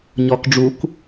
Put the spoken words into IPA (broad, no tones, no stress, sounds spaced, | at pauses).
ɲ ɔ k ɖ͡ʐ u k